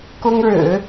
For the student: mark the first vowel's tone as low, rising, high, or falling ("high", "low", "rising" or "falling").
high